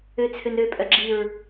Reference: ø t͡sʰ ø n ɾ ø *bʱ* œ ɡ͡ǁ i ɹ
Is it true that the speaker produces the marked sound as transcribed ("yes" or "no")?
no